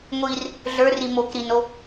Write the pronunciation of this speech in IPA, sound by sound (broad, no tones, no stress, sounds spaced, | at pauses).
ŋʷ i r | ɮ ə˞ r i m o k ɾ i n o